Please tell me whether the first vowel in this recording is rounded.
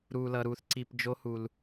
yes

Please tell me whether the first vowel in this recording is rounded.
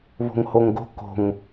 yes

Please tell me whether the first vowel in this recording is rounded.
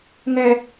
no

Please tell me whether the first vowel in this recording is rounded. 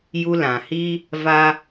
yes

